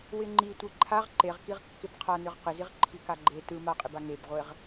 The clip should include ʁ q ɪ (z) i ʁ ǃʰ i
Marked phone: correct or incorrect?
correct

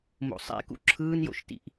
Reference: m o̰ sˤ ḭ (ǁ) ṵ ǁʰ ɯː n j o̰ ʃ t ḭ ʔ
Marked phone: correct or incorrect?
incorrect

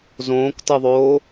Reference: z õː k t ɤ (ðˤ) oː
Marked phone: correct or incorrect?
correct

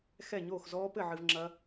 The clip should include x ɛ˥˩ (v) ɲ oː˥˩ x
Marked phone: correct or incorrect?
incorrect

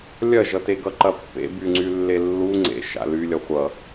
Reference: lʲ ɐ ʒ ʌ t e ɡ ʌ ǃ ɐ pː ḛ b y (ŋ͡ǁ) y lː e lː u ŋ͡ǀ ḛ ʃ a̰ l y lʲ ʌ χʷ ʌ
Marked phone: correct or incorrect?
incorrect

